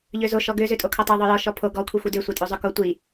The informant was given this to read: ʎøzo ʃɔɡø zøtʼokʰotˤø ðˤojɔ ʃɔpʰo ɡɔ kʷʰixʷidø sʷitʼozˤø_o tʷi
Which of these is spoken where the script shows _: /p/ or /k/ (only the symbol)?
k